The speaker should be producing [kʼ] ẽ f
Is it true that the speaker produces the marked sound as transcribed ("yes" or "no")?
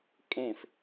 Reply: yes